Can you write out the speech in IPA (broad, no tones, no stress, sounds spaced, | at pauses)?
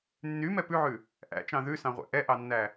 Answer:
nː y m ɛ p ʉ ʕ ʉ | ʔ æ̰ t͡ʃ ɑ̃ ð ʉ s ɑ̃ ʁʷ æ̰ ʔ ɛ ʔ ɑ nː æ